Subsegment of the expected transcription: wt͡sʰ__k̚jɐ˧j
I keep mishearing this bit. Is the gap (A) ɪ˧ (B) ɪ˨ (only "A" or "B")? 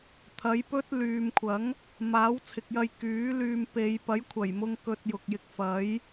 B